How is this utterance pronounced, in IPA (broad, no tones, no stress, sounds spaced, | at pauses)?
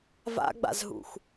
v a̰ ɡ͡b a̰ z ɦ ṵ x